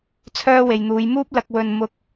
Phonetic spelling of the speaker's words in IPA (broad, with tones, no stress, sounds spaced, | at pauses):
t͡sʰ œː˥ w e˨ j n̪ uː˨˧ j m uː˥ p̚ l ɐ˧ k̚ w ɵ˧ n m ʊ˧ k̚